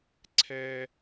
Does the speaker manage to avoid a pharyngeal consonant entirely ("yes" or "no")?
yes